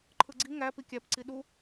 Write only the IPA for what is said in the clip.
ǃʰ ɯ ɡ͡ǀ i ŋ æ p i kʲ æ p ǀ i ɗ u

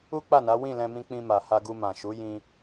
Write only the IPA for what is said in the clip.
u˦ k͡p a˦˨ n a˨˦ w ĩ˦˨ l ɛ̃˧ m ĩ˧ k͡p ĩ˧ m a˨ h a˧ ɡ u˧ m ã˨ ʃ u˨˦ j ĩ˧

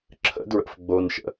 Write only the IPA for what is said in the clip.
ǁʰ ə̰ d ɹ ə̰ f ɡ͡b o n ʃ ə̰

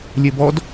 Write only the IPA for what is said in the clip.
lʲ e b ɔ d

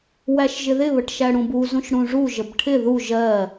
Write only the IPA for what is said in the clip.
w æ ʃ ʒ ɪ ð ɪ β ə ʈ ʃ æ ɽ ũ b u z ũ ʃ ɽ ũ ʐ u ʒ ə b ʈʰ ɪ ð u ʒ ɜ

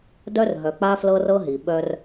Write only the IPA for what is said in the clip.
d œ˦ r ɦ œ˨ k͡p a˦ f l ɤ˦ r ɤ˦ ɦ i˨ ɓ œ˦ r

